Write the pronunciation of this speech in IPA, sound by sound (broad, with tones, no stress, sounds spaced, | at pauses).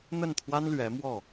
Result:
n̪ ə˥˩ n t̪ʰ w a˥ n l ɥ ɛ˧˥ m w ɔ˥˩